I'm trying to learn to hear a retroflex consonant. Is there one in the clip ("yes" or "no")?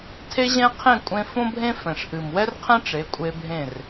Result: yes